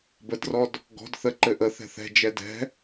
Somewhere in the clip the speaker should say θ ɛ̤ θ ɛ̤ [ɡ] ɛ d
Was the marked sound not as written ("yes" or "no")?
yes